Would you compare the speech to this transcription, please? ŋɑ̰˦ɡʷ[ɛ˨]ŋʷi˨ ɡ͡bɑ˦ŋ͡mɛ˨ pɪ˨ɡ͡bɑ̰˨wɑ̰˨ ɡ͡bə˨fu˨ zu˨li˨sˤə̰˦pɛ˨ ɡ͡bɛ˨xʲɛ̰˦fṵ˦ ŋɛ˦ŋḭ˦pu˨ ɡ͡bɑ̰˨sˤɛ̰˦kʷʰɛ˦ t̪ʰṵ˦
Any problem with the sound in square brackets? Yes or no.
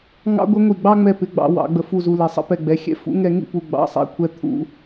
yes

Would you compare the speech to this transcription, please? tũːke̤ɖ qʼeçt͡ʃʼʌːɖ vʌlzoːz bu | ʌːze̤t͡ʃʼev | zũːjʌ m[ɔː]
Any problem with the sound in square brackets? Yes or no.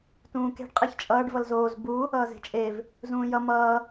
yes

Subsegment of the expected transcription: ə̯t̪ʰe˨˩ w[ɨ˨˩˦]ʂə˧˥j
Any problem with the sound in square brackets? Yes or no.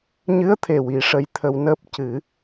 yes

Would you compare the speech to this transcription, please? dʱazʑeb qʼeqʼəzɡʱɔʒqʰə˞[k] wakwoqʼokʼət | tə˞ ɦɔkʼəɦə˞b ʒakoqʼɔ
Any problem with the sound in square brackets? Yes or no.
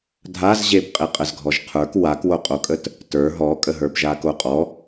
no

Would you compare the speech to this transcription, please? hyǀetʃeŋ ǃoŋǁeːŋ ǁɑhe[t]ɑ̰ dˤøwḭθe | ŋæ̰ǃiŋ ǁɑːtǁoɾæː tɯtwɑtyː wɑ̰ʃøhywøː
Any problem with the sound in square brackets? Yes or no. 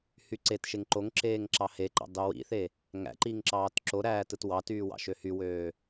yes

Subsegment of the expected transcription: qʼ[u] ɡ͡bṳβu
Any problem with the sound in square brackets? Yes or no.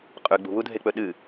yes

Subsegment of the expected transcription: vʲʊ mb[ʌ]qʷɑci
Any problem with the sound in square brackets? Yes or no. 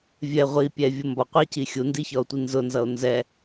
yes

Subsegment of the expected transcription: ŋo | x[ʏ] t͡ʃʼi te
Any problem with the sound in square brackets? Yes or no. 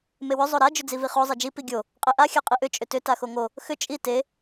no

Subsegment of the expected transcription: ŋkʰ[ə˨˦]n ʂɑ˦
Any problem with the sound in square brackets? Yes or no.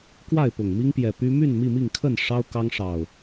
yes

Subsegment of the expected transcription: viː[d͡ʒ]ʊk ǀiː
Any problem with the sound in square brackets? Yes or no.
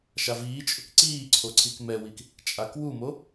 yes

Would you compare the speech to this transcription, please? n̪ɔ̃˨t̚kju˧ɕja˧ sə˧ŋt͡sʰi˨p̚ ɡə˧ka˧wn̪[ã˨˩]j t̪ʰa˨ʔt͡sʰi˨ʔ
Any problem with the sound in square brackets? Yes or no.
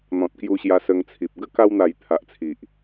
yes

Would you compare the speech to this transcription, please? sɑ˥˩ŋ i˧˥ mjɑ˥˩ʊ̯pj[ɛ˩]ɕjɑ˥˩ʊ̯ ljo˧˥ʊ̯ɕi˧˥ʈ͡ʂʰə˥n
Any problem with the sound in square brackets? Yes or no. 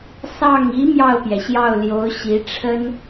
no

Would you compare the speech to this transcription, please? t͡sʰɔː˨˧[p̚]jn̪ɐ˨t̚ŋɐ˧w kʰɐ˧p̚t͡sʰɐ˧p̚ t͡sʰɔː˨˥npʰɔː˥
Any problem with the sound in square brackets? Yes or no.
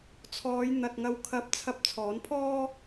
yes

